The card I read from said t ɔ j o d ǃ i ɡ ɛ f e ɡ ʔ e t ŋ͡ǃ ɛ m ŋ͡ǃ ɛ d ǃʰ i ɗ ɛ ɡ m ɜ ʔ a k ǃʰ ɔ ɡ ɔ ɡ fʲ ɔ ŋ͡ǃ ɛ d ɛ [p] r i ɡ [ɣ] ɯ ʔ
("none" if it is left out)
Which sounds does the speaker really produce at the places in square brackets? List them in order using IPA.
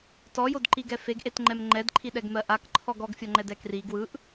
k, w

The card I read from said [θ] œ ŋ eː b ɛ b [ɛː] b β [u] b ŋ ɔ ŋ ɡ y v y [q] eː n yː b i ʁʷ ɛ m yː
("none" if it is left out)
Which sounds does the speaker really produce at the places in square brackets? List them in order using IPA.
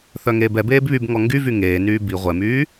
θ, eː, y, ŋ

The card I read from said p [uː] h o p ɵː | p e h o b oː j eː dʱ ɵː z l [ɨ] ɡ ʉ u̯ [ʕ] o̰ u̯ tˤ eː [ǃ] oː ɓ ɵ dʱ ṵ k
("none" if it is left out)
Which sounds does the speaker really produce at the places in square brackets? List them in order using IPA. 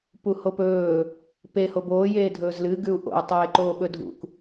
u, ɨ, ʔ, ǃ

